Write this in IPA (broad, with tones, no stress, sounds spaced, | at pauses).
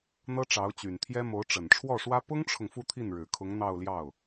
n̪ ɤ˥ ʈ͡ʂ ɑ˧˥ ʊ̯ t͡ɕ y˨˩ n t̪ʰ j ɛ˥ m o˧˥ ʊ̯ ʈ͡ʂ ə˨˩ n ʈ͡ʂʰ w ɔ˥˩ ʂ w ä˥ p ʊ˥ ŋ ʈ͡ʂʰ ʊ˨ ŋ f u˥˧ t̪ʰ i˥˩ n ɻ ɻ̩˨˩ kʰ ʊ˧˥ ŋ n̪ ɑ˥˧ ʊ̯ l j ɑ˥˩ ʊ̯